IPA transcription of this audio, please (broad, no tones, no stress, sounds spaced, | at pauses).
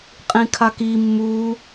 qʼ ĩ kʰ a k i mː u